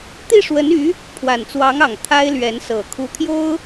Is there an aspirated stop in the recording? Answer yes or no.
yes